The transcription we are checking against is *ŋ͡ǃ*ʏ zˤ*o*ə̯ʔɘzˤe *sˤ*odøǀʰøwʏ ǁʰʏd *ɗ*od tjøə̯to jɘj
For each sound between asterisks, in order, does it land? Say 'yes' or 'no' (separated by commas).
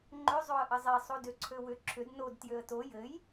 yes, yes, yes, no